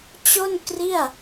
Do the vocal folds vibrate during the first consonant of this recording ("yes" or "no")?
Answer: no